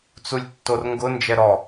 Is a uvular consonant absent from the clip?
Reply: yes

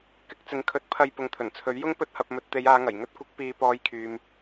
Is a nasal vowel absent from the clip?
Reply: yes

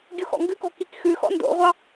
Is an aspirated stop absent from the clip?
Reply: yes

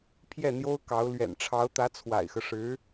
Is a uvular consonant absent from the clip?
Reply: yes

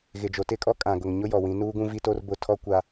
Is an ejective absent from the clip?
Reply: no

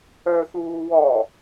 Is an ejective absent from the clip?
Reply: yes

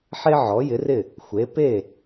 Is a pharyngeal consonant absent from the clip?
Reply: no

